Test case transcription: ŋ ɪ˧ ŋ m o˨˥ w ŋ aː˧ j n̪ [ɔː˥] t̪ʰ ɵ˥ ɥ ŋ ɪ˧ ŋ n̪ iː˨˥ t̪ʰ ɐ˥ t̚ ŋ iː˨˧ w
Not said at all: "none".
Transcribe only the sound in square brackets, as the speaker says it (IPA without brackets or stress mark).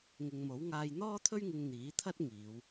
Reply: ɔː˥